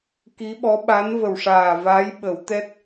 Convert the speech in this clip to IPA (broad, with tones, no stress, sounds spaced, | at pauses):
k i˧˥ ɓ ɔ˧˥ ɓ a˧˥ n v ə˨˩ w ʂ aː˨˩ v a˧˥ j ɓ ə˨˩˦ w t̪ ɛ˦˥ t̚